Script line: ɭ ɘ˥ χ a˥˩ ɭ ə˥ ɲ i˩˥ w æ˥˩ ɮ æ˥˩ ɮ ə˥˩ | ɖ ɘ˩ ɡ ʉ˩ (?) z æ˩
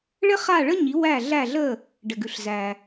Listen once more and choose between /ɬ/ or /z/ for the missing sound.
ɬ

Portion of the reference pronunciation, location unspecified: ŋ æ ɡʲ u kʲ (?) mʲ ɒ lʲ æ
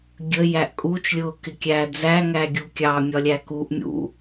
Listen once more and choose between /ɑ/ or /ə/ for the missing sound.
ɑ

